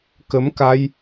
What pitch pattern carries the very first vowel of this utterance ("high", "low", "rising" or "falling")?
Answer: rising